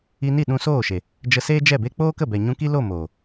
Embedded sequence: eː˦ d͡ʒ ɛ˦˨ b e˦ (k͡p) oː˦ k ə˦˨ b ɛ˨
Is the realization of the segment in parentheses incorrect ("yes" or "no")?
no